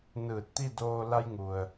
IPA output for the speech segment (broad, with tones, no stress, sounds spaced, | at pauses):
n ɯː˧˩ t̚ t̪ i˥˨ d oː˧ l a˧ j ŋ u˩ ə̯